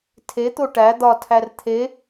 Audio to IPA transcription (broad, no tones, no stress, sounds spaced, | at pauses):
tʰ e t̪ o ʈ æ d̪ ɒ tʰ æ r t̪ʰ e